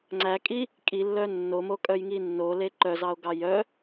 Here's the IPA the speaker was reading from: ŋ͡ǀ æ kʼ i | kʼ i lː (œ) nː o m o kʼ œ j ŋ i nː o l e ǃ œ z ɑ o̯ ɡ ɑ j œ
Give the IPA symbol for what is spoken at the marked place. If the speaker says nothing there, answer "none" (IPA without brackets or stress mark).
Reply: œ